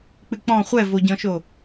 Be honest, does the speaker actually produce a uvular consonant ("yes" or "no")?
yes